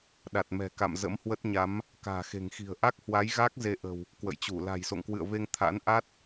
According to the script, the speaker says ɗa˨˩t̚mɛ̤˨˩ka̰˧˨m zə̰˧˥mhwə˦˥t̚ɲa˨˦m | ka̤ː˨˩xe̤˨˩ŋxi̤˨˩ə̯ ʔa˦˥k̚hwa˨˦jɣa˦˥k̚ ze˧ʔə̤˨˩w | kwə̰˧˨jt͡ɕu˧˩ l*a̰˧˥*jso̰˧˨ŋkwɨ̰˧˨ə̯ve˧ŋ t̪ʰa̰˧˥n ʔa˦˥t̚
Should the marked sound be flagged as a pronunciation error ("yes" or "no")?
yes